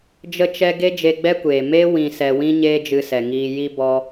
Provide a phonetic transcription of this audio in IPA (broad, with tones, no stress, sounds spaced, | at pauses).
d͡ʒ ə˧ t͡ʃ ɛ˧ ɡ e˦ d͡ʒ e˧ ɡ͡b ɛ˦ kʷ eː˨ m e˦ w ĩ˧ s ɛ˧ w ĩ˦ ɲ eː˦ d͡ʒ ɨ˧ s ɛ˨ ŋ iː˧ j i˧ b ɔ˧